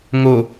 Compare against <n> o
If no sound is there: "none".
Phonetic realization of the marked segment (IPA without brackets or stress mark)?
ŋ